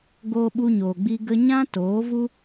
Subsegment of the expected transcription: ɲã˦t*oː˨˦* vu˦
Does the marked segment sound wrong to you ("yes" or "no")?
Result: no